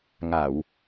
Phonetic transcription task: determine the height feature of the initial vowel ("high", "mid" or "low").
low